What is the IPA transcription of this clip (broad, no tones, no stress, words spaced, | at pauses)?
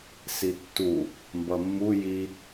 sitːu | mbʌmːu ji